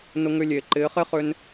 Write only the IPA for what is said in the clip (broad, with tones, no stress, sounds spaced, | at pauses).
n ʊ˧ ŋ ʏ˧ lʲ e˨ ǃ ɪː˨˦ χ e˦ χ ʏ˧ n